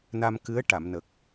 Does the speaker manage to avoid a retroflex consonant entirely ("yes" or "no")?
no